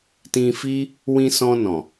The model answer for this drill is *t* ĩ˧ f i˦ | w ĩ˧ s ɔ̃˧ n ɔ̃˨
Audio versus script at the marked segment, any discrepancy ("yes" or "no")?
no